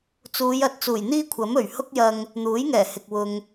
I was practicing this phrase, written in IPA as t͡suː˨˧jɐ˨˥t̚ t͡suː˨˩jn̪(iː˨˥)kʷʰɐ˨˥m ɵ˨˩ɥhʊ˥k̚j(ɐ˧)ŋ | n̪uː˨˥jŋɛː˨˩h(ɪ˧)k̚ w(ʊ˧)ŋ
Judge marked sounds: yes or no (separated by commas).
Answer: no, yes, no, yes